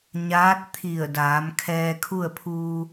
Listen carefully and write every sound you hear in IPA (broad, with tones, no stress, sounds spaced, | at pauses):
ɲ aː˧˥ t̚ t̪ʰ i˧˩ ə̯ d aː˩˧ m kʰ ɛː˧ kʰ u˥˨ ə̯ pʰ uː˧